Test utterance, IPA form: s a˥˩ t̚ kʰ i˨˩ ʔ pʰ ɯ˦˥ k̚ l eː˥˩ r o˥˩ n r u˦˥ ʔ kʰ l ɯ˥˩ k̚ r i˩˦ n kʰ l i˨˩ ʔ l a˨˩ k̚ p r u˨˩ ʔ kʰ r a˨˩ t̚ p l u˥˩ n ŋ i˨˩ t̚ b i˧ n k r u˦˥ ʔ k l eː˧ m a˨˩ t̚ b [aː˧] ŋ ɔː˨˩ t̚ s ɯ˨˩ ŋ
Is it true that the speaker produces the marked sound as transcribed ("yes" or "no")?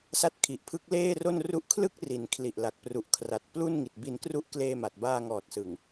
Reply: yes